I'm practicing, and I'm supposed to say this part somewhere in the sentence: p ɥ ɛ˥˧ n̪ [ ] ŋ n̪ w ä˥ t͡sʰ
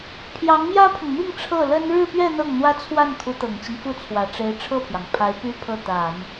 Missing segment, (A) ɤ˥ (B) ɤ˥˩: B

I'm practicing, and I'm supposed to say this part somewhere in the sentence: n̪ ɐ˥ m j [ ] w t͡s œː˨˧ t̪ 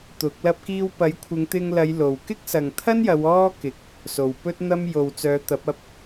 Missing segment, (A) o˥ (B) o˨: B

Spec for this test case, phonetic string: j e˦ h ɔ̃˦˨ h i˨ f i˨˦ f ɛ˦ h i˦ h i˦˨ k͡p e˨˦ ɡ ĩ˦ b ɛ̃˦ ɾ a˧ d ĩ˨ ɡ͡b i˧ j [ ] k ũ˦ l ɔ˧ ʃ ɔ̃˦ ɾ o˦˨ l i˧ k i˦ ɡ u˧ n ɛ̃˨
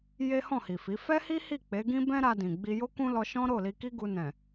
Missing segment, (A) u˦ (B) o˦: B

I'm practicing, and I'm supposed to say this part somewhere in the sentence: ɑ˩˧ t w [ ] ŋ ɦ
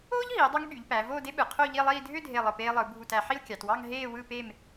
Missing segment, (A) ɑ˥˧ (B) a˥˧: A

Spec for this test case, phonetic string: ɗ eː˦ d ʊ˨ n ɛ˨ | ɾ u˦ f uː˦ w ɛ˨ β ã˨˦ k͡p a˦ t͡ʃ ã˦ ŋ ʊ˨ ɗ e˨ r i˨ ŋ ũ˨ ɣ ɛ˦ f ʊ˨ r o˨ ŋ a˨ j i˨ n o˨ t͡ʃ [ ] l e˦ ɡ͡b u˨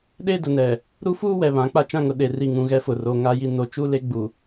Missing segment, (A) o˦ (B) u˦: B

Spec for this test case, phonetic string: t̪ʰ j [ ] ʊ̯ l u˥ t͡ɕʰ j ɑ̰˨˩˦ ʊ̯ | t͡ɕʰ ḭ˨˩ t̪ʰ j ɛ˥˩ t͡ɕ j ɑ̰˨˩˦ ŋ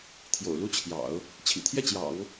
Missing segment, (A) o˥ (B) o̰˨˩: B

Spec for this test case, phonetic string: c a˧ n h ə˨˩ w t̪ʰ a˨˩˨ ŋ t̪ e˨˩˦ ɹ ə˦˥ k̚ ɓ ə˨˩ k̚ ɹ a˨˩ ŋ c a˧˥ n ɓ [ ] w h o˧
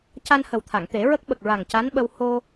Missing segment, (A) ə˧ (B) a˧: A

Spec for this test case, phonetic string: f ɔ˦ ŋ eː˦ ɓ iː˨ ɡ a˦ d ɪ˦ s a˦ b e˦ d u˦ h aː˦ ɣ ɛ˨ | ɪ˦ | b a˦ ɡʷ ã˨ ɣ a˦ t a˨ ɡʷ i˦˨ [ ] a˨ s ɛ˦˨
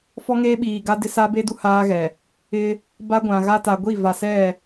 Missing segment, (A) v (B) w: A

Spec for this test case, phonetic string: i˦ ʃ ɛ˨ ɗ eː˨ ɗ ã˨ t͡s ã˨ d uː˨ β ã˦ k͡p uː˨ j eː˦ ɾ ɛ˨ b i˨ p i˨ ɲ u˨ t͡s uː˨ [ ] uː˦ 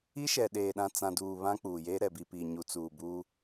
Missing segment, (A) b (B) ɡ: A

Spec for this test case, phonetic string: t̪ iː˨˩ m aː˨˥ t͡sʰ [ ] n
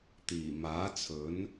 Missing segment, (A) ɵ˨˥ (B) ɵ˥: A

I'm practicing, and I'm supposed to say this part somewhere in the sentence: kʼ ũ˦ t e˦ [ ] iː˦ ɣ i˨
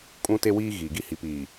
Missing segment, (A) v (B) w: B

